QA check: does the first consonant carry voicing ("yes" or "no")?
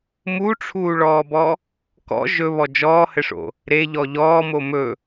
yes